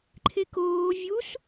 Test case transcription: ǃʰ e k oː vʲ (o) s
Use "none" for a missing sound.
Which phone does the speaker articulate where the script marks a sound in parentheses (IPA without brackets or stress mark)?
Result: u